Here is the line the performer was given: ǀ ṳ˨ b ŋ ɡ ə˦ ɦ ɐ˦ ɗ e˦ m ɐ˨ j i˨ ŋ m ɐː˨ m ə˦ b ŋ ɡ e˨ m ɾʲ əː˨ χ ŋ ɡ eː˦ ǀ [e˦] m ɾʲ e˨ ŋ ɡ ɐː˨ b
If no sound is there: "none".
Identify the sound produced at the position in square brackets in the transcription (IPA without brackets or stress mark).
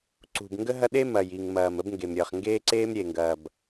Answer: eː˦